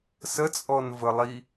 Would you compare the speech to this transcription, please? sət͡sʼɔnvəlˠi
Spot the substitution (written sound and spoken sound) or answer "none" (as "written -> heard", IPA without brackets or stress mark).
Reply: none